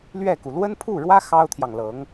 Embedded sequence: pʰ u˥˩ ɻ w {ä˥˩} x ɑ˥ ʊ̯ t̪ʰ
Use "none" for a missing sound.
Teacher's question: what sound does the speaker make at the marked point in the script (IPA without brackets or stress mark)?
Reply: ä˥